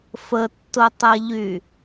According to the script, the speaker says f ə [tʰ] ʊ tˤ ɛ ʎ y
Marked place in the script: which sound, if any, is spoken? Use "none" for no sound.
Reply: tː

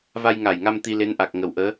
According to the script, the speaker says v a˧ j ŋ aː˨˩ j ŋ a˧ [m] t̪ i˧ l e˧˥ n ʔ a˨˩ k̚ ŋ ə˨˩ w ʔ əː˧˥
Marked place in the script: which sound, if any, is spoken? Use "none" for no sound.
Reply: m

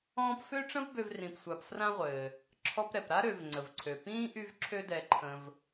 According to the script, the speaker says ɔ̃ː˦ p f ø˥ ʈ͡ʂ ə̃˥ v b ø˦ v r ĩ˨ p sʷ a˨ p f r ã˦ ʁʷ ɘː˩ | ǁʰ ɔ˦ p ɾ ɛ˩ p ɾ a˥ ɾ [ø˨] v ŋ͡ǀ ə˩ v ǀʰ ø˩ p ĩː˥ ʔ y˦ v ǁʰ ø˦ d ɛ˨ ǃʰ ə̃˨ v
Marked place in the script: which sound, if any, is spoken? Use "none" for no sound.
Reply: ø˨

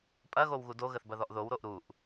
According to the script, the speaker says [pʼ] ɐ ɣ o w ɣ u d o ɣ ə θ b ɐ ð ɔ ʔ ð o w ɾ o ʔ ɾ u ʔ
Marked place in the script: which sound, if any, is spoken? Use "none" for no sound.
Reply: pʼ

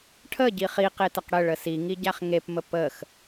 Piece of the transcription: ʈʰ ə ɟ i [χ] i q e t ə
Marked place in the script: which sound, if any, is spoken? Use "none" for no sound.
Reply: χ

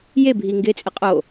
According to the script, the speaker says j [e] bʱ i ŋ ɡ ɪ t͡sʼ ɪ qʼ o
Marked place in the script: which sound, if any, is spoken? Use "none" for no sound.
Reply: e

